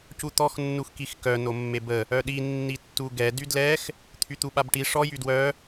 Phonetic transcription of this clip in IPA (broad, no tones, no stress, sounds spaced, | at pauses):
c u t̪ ɔ x nː u x k i x k œ n o mː e b ə | œ ɗ i nː i tː u ɡ ɛ d y d l ɛ x | t̪ʰ y t̪ u ɓ a b ʈ i ʂ ɔ j y d w œ